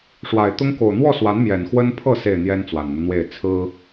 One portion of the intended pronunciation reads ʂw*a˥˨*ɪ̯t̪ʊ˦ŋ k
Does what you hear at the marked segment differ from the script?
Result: yes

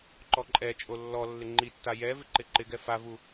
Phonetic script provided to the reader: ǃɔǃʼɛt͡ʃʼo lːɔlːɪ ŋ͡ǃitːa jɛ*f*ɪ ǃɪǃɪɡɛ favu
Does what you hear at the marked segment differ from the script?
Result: yes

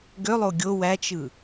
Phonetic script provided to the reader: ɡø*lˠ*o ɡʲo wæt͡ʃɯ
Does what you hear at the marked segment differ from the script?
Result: no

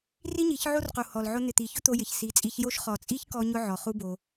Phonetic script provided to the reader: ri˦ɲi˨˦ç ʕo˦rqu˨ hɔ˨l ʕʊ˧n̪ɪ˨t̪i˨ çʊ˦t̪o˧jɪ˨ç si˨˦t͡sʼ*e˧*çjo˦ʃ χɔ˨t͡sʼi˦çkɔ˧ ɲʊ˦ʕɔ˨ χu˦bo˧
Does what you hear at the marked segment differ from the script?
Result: yes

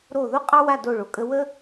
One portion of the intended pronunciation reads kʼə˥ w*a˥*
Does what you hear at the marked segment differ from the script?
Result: yes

